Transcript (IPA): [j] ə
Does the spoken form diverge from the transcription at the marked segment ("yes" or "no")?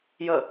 no